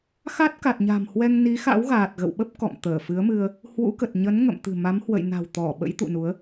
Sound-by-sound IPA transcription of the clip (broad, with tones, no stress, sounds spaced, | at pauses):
x a˦˥ t̚ k a˨˩ t̚ ɲ a̤˨˩ m h w ɛ˧ ŋ n i˨˦ x a̰˧˥ w ɣ aː˨˩ t̚ ɣ ə̰˧˨ w ɓ ə˦˥ p̚ k ɔ̰˧˨ m t̪ əː˧˩ f ɨ˨˦ ə̯ m ɨ˧ ə̯ | h w ṵ˧˥ k ə˨˩ t̚ ɲ ə˨˦ n ŋ ə̰˧˨ m t̪ ɨ̤˨˩ m a˨˦ m h w ə̰˧˨ j n a̤˨˩ w t̪ ɔ˧˩ ɓ ə̰˧˥ j t̪ ṵ˧˨ n u˨˦ ə̯